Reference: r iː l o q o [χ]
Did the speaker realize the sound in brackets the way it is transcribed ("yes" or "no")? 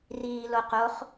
yes